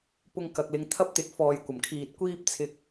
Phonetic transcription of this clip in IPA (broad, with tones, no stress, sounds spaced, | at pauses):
p ʊ˧ ŋ k ɐ˨ k̚ l ɪ˨˧ ŋ t̪ʰ ɐ˥ p̚ t̪ ɪ˨˥ k̚ f ɔː˨ j kʷ ɐ˨˩ m kʰ iː˨ t̚ kʷ iː˥ p̚ t͡sʰ ɪ˧ k̚